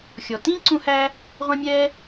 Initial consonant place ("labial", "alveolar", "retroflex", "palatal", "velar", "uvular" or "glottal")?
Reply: velar